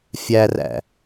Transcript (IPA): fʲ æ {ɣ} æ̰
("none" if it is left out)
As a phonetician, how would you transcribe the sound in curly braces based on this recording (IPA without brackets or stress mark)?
r